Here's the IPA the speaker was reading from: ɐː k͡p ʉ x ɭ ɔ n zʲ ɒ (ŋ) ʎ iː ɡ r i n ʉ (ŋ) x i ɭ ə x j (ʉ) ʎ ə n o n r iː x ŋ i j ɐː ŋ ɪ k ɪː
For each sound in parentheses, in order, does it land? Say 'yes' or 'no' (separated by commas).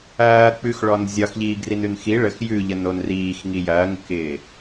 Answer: no, no, yes